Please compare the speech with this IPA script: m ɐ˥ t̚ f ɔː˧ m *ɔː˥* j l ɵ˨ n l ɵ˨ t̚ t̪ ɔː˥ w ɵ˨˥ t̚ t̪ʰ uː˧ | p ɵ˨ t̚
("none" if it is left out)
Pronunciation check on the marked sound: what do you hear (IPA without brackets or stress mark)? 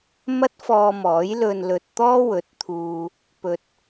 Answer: ɔː˨˥